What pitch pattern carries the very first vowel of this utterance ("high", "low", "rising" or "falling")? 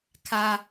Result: high